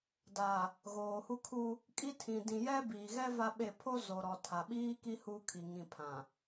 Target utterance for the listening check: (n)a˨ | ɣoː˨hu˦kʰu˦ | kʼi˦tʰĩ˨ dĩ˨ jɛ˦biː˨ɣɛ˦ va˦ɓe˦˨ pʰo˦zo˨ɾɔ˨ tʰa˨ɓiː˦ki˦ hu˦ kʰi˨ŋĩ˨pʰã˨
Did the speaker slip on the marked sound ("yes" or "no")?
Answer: yes